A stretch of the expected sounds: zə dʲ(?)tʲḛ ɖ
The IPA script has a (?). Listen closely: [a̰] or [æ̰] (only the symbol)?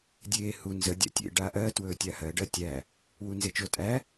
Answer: æ̰